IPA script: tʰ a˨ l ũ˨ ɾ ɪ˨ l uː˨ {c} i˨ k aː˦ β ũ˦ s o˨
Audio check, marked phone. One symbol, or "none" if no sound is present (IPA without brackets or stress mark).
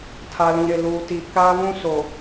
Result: t